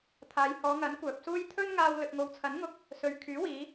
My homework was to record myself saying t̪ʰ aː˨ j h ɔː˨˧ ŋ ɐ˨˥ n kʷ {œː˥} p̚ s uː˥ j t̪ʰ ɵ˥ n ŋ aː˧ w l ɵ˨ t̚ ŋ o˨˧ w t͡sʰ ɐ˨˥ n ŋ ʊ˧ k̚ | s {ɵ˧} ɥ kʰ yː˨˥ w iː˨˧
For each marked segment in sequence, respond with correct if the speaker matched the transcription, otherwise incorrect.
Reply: incorrect: œː˨, incorrect: ɵ˨

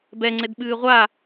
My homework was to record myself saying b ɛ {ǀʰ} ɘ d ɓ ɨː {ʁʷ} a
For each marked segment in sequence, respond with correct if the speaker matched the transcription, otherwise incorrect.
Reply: incorrect: ŋ͡ǀ, correct

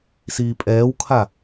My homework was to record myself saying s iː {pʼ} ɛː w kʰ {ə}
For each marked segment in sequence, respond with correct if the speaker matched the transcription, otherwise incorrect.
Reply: correct, incorrect: a

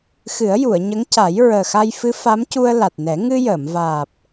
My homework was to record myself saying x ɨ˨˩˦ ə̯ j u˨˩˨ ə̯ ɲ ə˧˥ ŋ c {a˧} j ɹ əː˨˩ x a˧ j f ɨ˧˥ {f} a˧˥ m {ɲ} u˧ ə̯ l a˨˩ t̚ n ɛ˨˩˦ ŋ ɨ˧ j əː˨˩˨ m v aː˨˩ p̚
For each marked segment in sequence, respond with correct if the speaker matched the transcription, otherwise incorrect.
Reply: incorrect: a˨˩˦, correct, incorrect: c

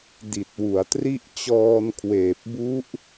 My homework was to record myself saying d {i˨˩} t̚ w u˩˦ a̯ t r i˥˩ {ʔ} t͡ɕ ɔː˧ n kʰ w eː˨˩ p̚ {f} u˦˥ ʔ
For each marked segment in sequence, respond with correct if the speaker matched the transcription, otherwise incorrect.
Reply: correct, correct, incorrect: b

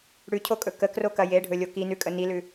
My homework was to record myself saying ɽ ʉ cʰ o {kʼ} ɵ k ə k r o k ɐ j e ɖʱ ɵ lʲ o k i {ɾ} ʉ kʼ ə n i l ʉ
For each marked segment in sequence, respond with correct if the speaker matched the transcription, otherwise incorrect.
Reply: correct, incorrect: n

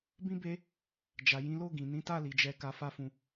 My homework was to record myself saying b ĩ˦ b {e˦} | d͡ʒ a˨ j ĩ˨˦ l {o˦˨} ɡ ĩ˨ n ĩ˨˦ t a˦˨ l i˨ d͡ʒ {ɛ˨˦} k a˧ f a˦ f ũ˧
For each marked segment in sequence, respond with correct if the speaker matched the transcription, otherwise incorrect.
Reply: correct, correct, correct

